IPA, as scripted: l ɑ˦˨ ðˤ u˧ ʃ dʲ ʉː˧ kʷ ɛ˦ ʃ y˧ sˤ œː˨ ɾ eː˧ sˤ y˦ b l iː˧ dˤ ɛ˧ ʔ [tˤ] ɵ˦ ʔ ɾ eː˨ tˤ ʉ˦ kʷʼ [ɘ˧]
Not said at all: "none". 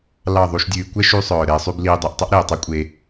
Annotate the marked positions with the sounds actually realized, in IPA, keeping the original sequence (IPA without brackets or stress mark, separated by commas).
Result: tˤ, e˧